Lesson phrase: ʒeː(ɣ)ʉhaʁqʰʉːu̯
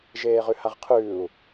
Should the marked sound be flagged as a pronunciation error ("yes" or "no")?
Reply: yes